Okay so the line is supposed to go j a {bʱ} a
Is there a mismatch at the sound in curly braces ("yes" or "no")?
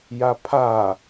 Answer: yes